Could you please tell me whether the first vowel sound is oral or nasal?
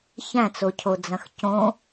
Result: nasal